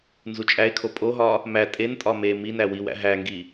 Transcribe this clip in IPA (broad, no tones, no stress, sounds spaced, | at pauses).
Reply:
n z u t͡ʃʼ æ ɪ̯ kʰ o pʼ o ɦ ɒ | m æ tʼ e n tʼ ɒ m e m i n æ w i w æ̰ ɦ æ ŋ ɡ i